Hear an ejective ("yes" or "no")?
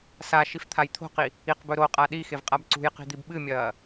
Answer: yes